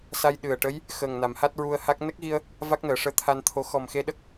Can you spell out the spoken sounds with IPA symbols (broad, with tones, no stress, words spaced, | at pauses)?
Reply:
sa˧jɗɨ˨˩ə̯ʈə˧˥j | xəː˨˩ŋna˨˩˨m ha˦˥t̚ɹu˧ə̯ha˦˥k̚ nə˦˥k̚ɣi˧ə̯ | va˦˥k̚nəː˨˩˨ʂəː˧ t̪ʰa˧nt̪ʰo˧˥ xɔ˨˩mxe˧ ɗə˦˥k̚